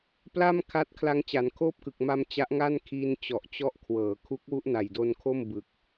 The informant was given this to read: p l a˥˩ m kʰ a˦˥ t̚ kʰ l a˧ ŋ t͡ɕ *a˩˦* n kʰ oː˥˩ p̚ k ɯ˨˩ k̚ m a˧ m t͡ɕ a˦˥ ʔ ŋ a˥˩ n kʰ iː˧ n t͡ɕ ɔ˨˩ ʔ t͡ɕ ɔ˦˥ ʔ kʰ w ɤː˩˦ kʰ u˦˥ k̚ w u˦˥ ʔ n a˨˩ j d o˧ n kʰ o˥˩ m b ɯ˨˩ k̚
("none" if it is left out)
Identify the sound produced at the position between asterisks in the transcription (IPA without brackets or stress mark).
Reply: a˩˦